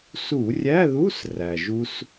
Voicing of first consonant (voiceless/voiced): voiceless